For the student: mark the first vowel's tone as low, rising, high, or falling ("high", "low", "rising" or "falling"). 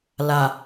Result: low